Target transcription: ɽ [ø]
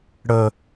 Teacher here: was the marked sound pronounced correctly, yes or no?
no